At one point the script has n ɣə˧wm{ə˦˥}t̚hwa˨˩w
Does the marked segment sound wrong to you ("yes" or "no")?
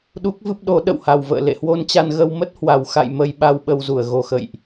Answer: no